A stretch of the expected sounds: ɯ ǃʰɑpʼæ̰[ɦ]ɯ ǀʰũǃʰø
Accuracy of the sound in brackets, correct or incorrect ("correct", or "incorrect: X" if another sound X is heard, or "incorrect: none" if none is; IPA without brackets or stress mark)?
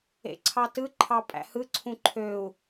incorrect: h